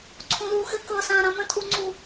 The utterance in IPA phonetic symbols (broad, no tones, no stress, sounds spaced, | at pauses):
ǀʰ ũ l uː x ɘ k ɤ s ãː ɾ ã m ə̃ tʼ u ŋ͡ǀ u